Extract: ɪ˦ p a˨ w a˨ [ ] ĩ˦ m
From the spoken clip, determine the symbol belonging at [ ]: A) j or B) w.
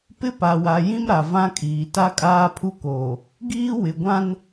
A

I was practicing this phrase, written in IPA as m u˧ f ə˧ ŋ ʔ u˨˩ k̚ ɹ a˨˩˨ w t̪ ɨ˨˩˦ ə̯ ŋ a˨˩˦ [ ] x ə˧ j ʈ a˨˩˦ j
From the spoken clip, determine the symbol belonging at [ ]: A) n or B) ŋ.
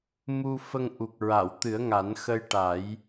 A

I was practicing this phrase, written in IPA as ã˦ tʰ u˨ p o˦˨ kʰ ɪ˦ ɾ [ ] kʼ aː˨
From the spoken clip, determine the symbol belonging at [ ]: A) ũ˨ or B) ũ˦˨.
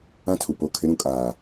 A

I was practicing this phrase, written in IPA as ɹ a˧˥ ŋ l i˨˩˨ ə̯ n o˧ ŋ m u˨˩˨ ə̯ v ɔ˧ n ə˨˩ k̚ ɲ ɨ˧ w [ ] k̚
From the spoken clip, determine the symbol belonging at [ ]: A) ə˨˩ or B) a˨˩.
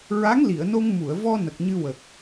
A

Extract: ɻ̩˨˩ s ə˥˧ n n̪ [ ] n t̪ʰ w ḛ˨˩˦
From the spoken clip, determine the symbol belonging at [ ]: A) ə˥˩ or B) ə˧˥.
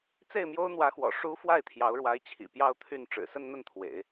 A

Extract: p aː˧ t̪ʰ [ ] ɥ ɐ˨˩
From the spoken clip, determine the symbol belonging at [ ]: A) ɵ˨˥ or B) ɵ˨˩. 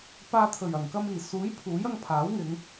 B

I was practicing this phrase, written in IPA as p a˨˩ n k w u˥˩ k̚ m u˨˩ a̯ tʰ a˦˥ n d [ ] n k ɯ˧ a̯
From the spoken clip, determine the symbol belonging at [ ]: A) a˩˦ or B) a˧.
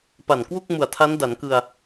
A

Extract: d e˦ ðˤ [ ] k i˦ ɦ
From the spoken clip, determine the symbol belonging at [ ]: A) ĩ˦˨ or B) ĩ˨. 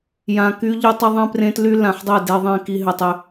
A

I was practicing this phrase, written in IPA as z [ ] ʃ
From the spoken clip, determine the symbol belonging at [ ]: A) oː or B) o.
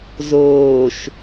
A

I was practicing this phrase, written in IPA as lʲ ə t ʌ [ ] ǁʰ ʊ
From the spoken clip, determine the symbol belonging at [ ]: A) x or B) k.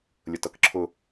B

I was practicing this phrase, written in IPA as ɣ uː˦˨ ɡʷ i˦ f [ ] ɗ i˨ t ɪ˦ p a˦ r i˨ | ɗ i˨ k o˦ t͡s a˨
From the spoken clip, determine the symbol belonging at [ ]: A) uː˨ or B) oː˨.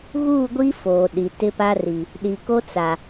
B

